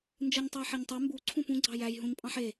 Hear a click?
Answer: yes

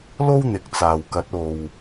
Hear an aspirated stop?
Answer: no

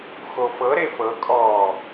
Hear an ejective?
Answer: yes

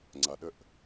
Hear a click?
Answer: yes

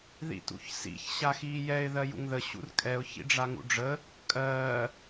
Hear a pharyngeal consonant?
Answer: no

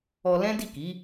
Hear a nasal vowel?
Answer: yes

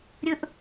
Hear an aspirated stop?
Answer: no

